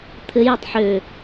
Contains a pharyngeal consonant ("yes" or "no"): yes